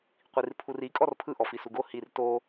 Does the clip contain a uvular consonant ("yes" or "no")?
yes